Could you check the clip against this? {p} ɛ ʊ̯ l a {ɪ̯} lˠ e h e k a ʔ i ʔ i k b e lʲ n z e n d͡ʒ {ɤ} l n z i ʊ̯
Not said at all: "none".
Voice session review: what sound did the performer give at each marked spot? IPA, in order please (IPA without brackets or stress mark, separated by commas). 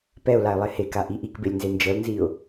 p, ɪ̯, ɤ